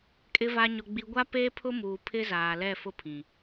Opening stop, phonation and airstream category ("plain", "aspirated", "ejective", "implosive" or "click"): ejective